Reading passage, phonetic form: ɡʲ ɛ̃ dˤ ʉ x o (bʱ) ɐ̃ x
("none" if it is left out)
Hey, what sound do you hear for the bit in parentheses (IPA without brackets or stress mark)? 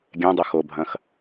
bʱ